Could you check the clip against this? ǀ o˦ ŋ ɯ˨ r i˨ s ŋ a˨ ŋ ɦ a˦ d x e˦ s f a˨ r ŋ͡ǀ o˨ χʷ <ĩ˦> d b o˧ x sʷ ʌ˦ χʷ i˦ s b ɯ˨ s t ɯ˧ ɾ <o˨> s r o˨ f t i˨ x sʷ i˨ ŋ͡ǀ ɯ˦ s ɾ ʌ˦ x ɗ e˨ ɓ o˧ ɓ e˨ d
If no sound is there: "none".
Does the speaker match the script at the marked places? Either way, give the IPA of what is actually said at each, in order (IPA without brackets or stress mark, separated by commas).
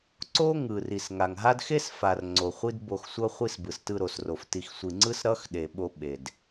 i˦, o˨